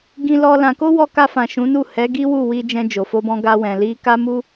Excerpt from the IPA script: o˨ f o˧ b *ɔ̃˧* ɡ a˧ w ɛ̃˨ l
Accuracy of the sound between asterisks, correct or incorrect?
correct